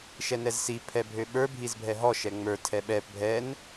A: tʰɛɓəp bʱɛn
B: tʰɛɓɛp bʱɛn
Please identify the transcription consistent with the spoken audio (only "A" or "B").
B